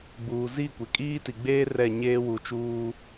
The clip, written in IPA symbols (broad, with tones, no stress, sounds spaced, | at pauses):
ɡ͡b uː˨ z i˦˨ kʷ e˨ kʼ iː˦ t i˨ ɡ͡b eː˦ r ɛ˦˨ ɲ eː˦ w uː˨ t͡ʃ uː˦